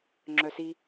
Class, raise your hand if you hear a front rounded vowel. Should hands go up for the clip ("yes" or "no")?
yes